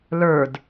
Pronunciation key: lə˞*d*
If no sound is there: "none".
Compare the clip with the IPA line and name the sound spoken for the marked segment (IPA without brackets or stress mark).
d